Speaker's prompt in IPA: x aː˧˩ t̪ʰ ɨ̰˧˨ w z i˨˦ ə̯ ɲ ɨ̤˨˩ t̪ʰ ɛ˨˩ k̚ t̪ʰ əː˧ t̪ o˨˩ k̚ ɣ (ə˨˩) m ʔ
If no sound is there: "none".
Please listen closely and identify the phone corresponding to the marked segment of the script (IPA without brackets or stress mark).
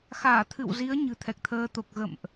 ə̰˧˨